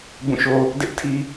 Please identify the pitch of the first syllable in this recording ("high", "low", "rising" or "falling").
falling